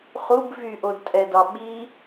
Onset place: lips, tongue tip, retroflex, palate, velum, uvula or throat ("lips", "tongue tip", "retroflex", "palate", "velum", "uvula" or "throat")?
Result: uvula